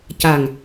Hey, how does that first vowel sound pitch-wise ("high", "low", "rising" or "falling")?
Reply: low